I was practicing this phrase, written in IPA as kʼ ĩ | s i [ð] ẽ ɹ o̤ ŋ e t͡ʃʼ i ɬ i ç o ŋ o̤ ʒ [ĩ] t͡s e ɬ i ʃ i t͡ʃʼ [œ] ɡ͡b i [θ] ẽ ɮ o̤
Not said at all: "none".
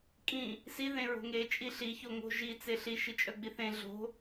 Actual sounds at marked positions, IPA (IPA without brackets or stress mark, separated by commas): ð, i, œ, θ